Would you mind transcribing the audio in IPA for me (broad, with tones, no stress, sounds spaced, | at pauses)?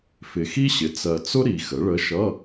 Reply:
f ɪ˨ x i˥ ɕ ɪ˩˥ t͡s ɜ˨ t͡s ʊ˥ ɾ i˨ x ə˩˥ ɭ ə˧˥ ʃ ʌ˧˥˧